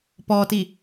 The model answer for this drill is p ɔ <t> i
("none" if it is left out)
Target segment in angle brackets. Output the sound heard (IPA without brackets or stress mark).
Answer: t